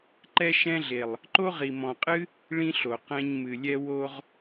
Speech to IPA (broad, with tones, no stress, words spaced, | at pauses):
ǃɛ˦ʃɛ̃˦ɮe˨lˠ | ǃo˦ʁi˨mɔ̃˨ qʼɨ˦ | ɭĩ˦ɬo˨ qɛ̃˧ɲmɨ˨lʲɛ˦ wo˧ʁ